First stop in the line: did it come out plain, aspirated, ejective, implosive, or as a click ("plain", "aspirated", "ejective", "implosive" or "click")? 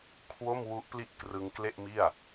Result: aspirated